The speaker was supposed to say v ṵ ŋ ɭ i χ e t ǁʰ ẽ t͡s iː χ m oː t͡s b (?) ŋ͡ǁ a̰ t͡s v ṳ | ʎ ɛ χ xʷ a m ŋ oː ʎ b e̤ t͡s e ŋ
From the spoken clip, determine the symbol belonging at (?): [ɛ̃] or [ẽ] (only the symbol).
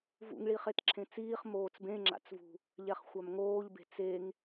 ẽ